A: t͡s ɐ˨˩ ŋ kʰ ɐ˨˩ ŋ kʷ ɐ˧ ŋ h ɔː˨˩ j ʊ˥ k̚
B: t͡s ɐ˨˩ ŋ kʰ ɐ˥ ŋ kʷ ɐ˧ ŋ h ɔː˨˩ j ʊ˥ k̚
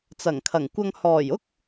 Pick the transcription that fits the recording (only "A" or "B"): A